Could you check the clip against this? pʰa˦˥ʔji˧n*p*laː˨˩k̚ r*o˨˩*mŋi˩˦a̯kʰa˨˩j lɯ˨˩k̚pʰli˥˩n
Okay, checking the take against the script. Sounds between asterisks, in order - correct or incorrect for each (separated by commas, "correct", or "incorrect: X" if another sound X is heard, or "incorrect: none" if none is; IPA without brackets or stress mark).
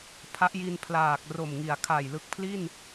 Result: incorrect: pʰ, correct